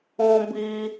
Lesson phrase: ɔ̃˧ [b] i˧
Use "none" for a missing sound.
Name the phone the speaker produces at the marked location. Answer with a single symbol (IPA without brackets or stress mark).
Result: b